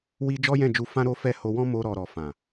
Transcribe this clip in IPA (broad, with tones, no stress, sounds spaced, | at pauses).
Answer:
w i˧ d͡ʒ ɔ˦ j ɛ̃˦˨ d͡ʒ u˧ f ã˦ ɾ o˦ f ɛ˦˨ h o˧ w ɔ̃˦ m o˧ ɾ ɔ˨ ɾ ɔ˨ f ã˨